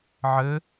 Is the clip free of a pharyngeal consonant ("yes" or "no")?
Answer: no